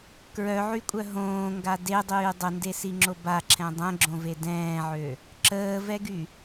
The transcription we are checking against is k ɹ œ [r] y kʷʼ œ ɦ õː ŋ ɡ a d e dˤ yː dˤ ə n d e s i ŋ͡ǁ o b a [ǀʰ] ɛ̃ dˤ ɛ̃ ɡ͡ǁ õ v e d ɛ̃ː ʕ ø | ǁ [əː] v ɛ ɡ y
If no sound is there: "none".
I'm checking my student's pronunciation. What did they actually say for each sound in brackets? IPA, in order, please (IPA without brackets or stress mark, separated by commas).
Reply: ʕ, ǁʰ, əː